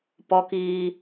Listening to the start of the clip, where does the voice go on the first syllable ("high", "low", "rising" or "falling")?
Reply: high